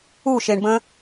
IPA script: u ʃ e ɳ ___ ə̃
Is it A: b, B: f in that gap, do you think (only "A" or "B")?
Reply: A